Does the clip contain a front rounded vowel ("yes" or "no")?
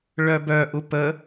yes